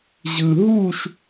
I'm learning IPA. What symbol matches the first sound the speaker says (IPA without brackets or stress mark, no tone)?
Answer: ʑ